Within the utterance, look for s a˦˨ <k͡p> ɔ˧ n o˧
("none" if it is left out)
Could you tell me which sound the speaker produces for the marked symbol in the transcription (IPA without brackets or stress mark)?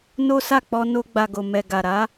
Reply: k͡p